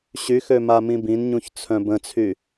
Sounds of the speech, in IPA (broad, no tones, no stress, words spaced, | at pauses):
ɕyxø mamĩbĩnɲũç t͡sʰœ̃bə̃t͡sʰy